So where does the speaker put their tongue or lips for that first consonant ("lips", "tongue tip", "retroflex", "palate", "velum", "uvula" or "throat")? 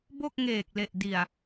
lips